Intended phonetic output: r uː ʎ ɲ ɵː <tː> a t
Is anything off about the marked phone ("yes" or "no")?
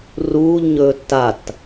no